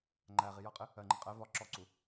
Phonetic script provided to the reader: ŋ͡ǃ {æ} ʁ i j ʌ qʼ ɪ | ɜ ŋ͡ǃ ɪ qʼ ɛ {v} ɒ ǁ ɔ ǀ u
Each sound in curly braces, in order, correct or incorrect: correct, correct

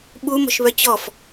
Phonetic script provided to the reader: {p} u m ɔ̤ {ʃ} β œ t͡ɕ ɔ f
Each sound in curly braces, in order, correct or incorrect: incorrect: ɓ, correct

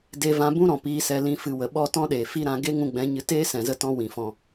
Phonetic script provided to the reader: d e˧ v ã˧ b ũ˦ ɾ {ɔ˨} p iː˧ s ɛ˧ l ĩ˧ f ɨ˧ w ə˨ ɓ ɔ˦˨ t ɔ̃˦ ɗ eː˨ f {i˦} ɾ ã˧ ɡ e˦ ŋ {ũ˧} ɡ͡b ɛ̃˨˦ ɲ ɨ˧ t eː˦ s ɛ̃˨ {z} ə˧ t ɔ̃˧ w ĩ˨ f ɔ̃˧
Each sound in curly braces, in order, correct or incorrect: incorrect: ɔ̃˨, correct, correct, correct

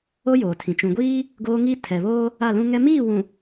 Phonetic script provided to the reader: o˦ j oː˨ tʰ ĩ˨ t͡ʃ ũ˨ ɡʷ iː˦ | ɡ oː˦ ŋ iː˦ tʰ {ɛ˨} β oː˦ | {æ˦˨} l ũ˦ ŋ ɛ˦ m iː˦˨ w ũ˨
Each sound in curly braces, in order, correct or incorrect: correct, incorrect: a˦˨

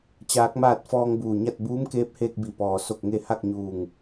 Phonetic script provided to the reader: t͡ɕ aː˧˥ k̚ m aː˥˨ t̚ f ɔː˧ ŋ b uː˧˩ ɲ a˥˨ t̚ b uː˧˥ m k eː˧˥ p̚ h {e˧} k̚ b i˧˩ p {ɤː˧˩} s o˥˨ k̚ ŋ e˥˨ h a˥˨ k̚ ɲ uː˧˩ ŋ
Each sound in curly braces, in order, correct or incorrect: incorrect: eː˧, incorrect: ɔː˧˩

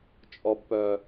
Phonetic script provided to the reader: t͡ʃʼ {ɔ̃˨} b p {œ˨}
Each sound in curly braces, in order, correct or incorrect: incorrect: ɔ˨, correct

